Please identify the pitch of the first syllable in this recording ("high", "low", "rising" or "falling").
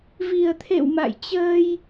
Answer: low